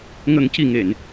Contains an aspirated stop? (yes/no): no